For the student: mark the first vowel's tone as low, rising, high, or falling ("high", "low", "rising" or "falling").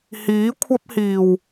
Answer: rising